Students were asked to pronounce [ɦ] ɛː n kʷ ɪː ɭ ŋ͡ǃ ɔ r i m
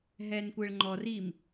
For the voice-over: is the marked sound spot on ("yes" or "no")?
yes